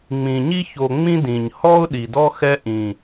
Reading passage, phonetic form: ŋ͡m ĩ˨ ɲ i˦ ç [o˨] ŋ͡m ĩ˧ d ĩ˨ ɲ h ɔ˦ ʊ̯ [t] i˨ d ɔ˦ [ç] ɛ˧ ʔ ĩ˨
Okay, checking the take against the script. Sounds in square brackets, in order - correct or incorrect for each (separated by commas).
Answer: correct, incorrect, incorrect